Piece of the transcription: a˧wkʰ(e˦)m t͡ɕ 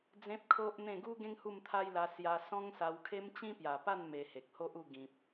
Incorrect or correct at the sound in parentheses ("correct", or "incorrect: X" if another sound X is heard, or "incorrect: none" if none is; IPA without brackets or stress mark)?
correct